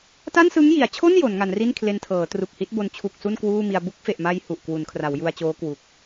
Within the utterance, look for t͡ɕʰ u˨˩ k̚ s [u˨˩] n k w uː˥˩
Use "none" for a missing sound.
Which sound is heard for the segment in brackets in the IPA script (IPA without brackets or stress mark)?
u˥˩